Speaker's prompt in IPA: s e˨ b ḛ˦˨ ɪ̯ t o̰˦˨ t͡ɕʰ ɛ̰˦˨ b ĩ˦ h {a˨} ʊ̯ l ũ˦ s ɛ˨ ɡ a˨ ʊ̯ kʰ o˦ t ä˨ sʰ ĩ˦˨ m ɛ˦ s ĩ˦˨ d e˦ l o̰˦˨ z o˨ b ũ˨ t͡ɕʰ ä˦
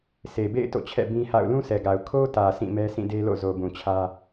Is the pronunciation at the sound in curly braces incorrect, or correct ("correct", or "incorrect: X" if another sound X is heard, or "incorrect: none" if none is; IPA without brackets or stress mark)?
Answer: incorrect: a̰˦˨